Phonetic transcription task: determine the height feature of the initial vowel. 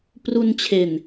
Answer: high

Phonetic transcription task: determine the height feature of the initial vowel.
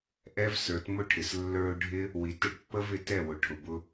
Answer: mid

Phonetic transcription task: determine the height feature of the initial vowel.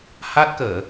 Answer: low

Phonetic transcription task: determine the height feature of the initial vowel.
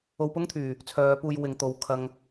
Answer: mid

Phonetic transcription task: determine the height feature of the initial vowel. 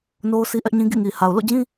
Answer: mid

